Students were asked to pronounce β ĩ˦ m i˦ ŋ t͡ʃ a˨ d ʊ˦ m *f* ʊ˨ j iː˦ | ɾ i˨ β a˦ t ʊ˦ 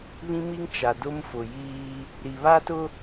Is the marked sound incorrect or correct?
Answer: correct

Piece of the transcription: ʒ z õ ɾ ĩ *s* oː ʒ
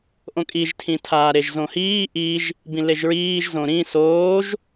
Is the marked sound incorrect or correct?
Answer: correct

